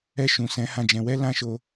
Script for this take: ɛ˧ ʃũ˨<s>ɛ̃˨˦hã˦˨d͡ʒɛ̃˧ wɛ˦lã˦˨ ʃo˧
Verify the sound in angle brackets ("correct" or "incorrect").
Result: correct